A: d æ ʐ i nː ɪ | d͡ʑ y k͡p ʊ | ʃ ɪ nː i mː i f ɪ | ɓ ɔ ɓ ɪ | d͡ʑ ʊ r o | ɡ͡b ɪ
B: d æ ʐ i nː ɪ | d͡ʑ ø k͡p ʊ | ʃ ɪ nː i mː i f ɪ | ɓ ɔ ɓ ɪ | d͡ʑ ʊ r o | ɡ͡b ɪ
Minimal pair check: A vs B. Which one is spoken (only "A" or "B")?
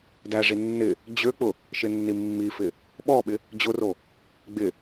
B